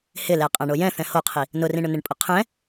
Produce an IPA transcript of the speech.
hɪlɛ qʼãɳojɛ̃θɛ̃ hoqʰi | nʊrĩɳʊ nɪɳpʼʊqʰɛ̃

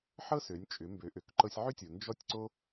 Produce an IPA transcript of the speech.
ħɤ˥sø˩˧nʲ t͡ʃʼʏ˩˧mbø˩˧ʔø˩k ǃɤ˧sʲʕʏ˥tʲo˩ nd͡ʒɔ˥tʲǀo˥

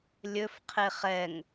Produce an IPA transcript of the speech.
lʲɵfqʰe χɛŋ

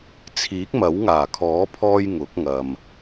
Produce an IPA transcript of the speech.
t͡sʰiː˨˥k̚mɐ˨˥wŋaː˨˩kʰɔː˨˥ pʰɔː˥jŋʊ˨˥k̚ŋɐ˨m

